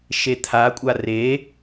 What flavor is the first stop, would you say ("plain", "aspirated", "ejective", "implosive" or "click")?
aspirated